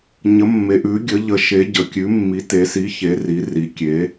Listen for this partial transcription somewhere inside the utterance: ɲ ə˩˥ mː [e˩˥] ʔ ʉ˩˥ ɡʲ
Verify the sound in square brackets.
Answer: incorrect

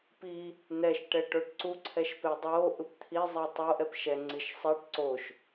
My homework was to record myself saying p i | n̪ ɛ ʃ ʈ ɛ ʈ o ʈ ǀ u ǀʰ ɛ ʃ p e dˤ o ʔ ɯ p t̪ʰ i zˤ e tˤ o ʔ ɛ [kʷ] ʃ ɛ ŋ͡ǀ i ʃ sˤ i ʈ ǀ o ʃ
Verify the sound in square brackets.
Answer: incorrect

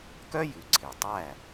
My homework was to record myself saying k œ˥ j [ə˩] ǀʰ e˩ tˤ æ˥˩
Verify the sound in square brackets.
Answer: incorrect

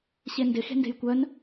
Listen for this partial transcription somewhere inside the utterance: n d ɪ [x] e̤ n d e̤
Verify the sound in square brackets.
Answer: correct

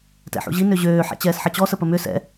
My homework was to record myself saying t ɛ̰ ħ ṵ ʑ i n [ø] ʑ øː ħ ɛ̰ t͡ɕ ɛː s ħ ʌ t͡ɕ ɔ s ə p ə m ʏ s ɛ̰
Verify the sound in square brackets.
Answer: correct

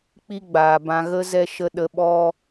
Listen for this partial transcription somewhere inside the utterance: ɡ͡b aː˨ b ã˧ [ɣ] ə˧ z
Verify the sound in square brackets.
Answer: correct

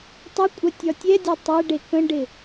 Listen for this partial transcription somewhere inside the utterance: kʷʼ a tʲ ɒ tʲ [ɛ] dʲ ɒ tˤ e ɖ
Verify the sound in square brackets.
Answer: correct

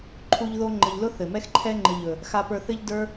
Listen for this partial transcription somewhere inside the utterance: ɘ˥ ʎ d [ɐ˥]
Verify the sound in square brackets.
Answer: incorrect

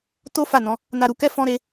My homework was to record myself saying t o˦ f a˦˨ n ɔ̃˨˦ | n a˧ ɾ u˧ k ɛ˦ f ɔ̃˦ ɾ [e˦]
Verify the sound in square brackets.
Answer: correct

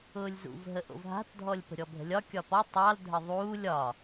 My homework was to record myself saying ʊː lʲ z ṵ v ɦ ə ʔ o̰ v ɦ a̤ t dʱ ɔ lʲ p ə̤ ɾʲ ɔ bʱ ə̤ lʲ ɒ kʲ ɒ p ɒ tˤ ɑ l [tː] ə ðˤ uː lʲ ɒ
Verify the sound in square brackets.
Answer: incorrect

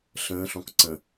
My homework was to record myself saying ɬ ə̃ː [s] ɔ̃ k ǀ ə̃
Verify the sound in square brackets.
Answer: incorrect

